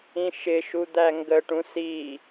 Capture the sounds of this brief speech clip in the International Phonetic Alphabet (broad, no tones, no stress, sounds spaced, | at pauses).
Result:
ĩ ʃ ɪ ʃ u d̪ æ ŋ ɡ ə ʈ ũ s i